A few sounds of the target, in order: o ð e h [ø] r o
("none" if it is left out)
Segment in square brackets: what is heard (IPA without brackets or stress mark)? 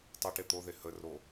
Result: ə